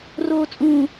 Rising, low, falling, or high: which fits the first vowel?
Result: low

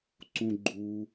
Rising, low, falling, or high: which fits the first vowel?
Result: high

